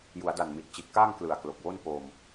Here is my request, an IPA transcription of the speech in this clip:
ju˩˦a̯da˨˩nmi˨˩t̚t͡ɕi˨˩t̚ kaː˥˩ŋ klɯ˨˩a̯klo˨˩k̚wo˥˩n po˧m

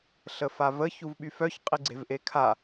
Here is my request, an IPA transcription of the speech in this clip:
ɬəfavə çuvɓyfœç qʼiɡ͡ǀe̤vʔekʰa

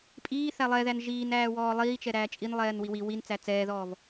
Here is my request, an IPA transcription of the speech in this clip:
pʼiː θælˠɛðæn ʒiːn æːwɔːlˠiːt͡ʃɛ ɾæːt͡ʃʼinlˠɛːn wiwi win t͡sæt͡sɛːðɔːv

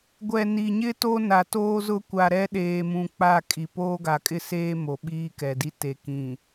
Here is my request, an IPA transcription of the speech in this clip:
ɡʷɛ˨ni˨ɲɪ˦ to˦ na˨ toː˦zʊ˦kʷa˨ ɾɛ˦ɗeː˨mũ˨ k͡pa˦˨ kʼi˨ poː˦ɡa˨kʼɪ˦seː˦ mo˨ɓiː˦kɛ˨di˦ te˨kĩ˨

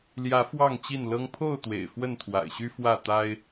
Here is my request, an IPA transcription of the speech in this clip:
ljä˨˦ fwɑ˥˨ŋt͡ɕi˥˨nlɤ˦ŋ pʰo˥˨ʊ̯t̪wḛ˨˩ɪ̯ fwə˥˨nt̪ʰwa̰˨˩ɪ̯ɕy˦ fwä˥˨ t̪a˦ɪ̯

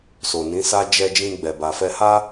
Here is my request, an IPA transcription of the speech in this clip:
so˨nĩ˨˦sa˦ d͡ʒɛ˧d͡ʒĩ˧ ɡ͡bɛ˨ba˨fɛ˧ ha˦

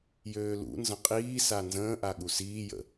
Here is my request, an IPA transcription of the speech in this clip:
jøːlṵnzə̃ qʼiːsa nzə̃ːʔa ɠusiːjə̰

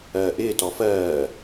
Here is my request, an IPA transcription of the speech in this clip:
ɜːʔɪː tɔfɜː

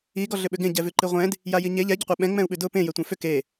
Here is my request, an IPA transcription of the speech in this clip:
i ɡɔɮʏɓʏɡẽ ɟɛvʉǃiʁʷɛ̃d | jajiɲe ʎɛ ɟʏqʷɛɓɛ̃ ŋ͡mɛ̃u̯ɓʉdʊ pẽ jɛtʷɛ̃fʏ ke

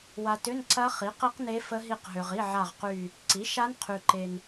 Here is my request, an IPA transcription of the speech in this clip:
wa˨tʏ˧˥˧n ǀɐ˦˥ χi˩˥qi˦˥qne˦˥ fə˦˥ɦi˦˨qɦø˨ʁi˧˥˧ ʕa˦˨ʁqy˦˨ | ǀi˩˥ʃa˦˥nqʰy˨ ǃe˨n

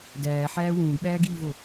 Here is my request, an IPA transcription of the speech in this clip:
dæːħæː wũːɡɓæːɡiːvo

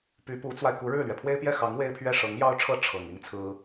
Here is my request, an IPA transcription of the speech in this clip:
py˧˥pu˧˥t͡swa˧ɪ̯ ku˧˥ɻɻ̩˥˩lɥɛ˩ pʰwe˥ɪ̯pjɛ˥˩xɑ˧˥ŋ we˥ɪ̯pʰɥɛ˥ ʂɤ˧˥ŋjɑ˥ʊ̯ʈ͡ʂʰɤ˥ ʈ͡ʂʰɤ˨˩ŋ i˥ŋt͡sʰɹ̩˥

